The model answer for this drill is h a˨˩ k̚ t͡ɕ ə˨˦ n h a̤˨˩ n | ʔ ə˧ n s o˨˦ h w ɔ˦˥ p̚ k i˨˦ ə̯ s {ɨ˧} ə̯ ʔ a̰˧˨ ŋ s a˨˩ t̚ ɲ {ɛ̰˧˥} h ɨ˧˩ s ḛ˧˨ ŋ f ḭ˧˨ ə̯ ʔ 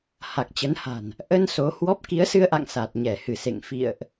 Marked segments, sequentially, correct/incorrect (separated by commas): correct, incorrect